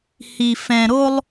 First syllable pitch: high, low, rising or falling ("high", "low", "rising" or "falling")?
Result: low